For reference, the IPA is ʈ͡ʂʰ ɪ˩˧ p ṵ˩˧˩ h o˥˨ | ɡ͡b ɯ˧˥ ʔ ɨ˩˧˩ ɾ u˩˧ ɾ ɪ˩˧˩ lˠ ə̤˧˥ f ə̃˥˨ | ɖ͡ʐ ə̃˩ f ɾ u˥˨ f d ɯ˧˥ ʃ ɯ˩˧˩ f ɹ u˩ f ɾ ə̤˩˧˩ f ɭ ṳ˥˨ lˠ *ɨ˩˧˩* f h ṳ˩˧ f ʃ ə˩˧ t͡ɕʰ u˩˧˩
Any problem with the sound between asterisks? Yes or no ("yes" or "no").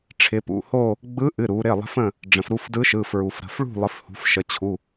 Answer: yes